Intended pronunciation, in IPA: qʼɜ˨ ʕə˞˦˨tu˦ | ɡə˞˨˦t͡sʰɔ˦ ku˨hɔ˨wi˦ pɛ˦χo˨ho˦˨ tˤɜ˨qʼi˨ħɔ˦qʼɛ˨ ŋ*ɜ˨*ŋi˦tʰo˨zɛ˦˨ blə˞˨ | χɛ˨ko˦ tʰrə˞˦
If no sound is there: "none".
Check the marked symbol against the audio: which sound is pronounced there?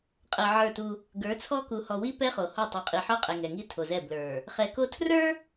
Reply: ɛ˨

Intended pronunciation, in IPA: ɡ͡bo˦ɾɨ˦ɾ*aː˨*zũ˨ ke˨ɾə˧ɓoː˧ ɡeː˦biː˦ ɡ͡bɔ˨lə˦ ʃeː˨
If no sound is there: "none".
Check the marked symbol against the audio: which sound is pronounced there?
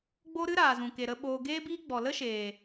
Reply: aː˨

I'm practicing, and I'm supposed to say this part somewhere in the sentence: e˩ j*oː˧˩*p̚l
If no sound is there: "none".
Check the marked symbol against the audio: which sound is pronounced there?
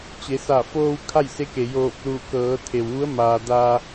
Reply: oː˧˩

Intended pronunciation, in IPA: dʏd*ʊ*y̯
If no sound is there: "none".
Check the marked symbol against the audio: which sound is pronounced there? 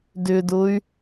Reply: ʊ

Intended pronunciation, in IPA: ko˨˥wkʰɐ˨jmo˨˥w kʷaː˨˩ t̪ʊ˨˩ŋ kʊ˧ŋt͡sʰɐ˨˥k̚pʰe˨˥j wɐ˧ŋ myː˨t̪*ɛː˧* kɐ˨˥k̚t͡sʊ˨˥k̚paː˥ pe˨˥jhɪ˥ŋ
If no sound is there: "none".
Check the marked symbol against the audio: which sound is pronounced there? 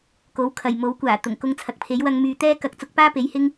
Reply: ɛː˥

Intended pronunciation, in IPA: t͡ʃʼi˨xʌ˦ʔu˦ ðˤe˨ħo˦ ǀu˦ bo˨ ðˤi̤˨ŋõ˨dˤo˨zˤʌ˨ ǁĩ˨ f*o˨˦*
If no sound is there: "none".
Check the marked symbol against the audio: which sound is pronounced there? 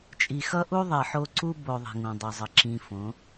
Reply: õ˨˦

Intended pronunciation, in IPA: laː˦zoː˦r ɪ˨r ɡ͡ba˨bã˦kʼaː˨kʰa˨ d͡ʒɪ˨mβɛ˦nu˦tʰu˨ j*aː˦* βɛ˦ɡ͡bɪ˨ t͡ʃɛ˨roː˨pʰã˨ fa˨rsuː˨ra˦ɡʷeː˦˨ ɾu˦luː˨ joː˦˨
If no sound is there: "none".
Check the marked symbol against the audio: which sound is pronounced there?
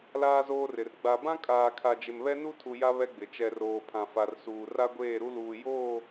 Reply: a˦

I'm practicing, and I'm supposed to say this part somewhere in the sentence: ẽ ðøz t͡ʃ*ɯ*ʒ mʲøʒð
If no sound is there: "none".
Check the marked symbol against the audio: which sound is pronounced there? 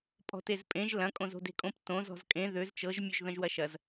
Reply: ɤ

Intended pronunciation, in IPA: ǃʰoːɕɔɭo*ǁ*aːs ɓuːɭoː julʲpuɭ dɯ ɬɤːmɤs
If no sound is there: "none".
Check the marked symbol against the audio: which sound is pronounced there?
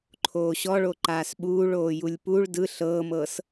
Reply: ǃ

